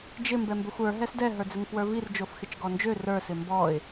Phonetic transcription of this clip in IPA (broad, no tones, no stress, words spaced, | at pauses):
d͡ʒɪ mbɛmbøxʷə˞ ɦɛsdɛ ɦə˞d͡zɪŋfwə˞vir d͡ʒofxɪt͡ʃɡɔnd͡ʒø rə˞ sɪmbɔɪ̯